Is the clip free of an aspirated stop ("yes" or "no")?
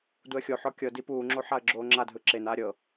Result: yes